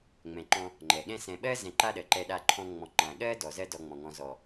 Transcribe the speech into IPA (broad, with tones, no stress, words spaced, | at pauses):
ŋ͡mɛ̃˨ǃɔ̃˧ | ŋ͡ǃɛ˨ɠɛ̃˦ sɛ̃˨ɓɜ˦ zɛ̃˧ǃa˦ɗɜ˨ǃɛ˧ ɗa˧ǃʰɔ̃˧ ŋ͡mɔ̃˨ ŋ͡ǃã˨ɠɜ˦ dɔ˨zɜ˦ dɔ˧ŋ͡mɔ̃˨ŋɔ̃˧ zɔ˨